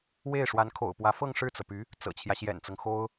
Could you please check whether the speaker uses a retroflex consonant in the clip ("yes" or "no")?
yes